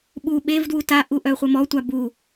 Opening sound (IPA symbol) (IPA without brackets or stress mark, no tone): ɓ